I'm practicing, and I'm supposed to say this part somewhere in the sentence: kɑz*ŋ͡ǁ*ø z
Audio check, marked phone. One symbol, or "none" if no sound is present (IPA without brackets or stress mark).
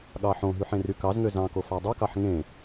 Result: ŋ